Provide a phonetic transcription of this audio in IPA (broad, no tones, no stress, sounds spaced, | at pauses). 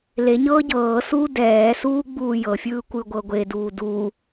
l e ɲ ɤː ɟ ɤː s uː d ɛː s uː ɡ͡b uː j ɤ fʲ ɯː kʷ ɯ ɡʷ ɤ ɡʷ e d uː d u